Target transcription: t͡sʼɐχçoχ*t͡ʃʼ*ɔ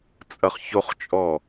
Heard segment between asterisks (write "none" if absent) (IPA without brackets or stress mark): t͡ʃʼ